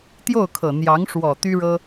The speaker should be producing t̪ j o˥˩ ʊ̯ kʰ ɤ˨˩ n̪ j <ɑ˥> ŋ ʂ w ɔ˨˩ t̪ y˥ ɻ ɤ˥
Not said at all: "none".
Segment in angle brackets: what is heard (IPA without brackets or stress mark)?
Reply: ɑ˧˥